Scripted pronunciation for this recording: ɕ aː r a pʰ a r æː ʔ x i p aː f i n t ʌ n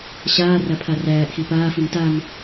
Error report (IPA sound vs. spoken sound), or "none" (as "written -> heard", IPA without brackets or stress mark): ʌ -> a